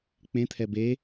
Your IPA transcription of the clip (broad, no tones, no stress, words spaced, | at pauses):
k͡pẽt̪ʰɛ be